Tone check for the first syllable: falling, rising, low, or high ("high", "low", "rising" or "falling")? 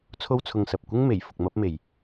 high